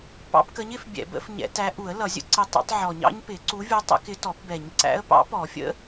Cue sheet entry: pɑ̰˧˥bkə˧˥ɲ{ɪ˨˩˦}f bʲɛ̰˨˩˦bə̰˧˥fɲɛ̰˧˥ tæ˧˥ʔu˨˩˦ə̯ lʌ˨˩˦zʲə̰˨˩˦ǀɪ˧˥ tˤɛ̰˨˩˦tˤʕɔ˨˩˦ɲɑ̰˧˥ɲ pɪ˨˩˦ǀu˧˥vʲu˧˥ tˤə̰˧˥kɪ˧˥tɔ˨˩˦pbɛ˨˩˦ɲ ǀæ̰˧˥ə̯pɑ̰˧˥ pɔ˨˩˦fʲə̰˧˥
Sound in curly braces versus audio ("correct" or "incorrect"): correct